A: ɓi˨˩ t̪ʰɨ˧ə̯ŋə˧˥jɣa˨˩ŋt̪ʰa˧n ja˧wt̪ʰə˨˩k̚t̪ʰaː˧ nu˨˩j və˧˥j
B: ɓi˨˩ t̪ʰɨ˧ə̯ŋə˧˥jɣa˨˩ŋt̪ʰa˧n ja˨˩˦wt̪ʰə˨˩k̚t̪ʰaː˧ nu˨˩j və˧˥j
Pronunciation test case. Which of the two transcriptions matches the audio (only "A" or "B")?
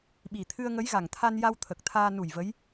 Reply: A